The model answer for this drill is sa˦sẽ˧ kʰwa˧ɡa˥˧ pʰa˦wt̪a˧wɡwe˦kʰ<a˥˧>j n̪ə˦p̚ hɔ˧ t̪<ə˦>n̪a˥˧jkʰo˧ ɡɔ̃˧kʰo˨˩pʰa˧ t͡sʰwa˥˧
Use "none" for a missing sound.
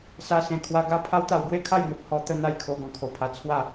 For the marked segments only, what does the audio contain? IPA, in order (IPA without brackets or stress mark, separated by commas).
a˥˧, ə˦